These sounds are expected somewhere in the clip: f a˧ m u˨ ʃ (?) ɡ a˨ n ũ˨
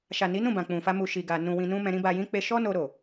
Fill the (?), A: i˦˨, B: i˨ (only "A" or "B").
B